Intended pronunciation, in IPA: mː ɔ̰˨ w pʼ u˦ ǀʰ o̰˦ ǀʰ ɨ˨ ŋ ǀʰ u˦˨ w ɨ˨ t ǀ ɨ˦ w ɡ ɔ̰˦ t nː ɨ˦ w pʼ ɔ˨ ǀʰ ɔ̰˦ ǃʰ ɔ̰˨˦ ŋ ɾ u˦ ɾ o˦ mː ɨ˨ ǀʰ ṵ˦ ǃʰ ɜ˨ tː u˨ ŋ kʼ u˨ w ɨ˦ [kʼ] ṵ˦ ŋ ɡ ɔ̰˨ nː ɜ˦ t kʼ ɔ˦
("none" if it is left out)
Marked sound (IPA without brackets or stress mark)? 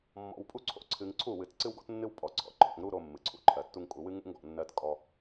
ŋ